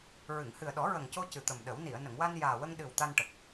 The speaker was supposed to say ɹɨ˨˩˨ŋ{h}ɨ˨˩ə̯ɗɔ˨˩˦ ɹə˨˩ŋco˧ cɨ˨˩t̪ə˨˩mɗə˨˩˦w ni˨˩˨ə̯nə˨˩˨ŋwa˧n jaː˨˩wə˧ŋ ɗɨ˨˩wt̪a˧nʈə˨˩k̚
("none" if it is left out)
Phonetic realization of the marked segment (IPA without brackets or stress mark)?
h